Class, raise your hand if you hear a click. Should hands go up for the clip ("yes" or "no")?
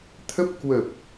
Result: no